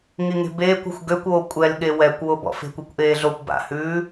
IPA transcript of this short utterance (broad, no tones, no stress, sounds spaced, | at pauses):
ŋ i ŋ e̤ b eː kʷ a̤ xʷ ɡ ø kʷ oː kʷʼ ɛ l ɠ e w ɛ kʷ w o b ɔ̰ f e̤ kʷ i kʷ ʔ eː ɮ o kʷ b a̰ h ʉː